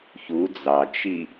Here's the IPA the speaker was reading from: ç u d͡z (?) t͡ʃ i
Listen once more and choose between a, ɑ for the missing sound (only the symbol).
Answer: ɑ